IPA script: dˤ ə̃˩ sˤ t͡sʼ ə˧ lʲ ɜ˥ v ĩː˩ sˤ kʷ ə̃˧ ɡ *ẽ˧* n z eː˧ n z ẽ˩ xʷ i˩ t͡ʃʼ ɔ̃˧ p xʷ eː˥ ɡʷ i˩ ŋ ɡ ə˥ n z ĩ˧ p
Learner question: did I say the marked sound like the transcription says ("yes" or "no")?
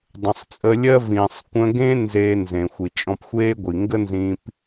no